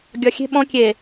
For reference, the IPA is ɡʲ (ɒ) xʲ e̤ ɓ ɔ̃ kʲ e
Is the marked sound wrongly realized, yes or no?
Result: no